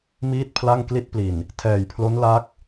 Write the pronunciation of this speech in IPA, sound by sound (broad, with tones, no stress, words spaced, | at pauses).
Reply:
miː˥˩t̚pʰla˥˩ŋ kli˦˥t̚pli˨˩n | tʰɛː˨˩jpʰlo˦˥n la˦˥k̚